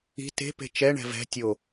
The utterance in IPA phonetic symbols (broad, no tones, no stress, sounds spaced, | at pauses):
i̤ t e̤ p e̤ t͡ʃ ɛ ɳ ɛ̤ v ɛ̤ tʲ o